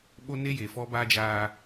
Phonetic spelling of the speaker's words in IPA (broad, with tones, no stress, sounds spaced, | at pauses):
ɓ o˦ n e˦ j e˨ f ɔ˦ b aː˦ d͡ʒ aː˦